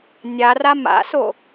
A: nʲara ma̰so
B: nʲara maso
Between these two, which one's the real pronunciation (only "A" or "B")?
A